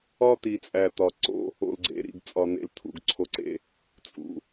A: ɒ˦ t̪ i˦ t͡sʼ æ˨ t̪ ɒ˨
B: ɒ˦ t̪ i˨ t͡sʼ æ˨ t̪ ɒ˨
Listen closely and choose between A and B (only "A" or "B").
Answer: B